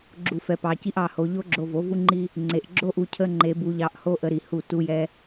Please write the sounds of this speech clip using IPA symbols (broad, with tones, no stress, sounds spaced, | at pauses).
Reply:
ɡ͡ǁ u˧ f ɛ˧ p ɑ˧ c i˦ ʔ ɑ˧ h o˧ ʎ o˦ ɡ͡ǁ o˧ v o˨˦ v u˦ ŋ͡ǃ i˦ | ŋ͡ǀ e˨ ʔ ɡ͡ǁ o˦ ʔ u˧ cʰ ə˦ ŋ͡ǃ e˧ b u˧ ʎ ɑ˧ ʔ h o˦ ʔ ə˧ ɾ i˨ h u˦˨ t u˦ j ɛ˦